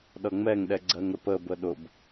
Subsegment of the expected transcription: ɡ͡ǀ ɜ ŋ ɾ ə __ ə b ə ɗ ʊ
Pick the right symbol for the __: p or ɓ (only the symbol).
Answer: p